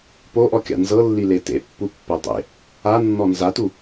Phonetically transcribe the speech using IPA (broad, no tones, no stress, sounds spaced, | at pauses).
p o ʔ ɔ kʲ a̰ n z ɤ lː i l e t ḛ pː u pː ɛ dˤ ḛ | a nː ɔ n z a t u